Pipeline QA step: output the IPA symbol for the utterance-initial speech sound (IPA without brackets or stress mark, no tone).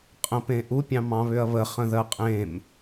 qʼ